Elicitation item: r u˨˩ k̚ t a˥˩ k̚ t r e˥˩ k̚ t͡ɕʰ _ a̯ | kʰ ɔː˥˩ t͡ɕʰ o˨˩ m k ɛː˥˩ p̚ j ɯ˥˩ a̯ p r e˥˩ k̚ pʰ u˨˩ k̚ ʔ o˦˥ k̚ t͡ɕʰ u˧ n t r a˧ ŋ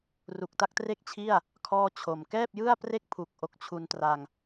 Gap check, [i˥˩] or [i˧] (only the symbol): i˥˩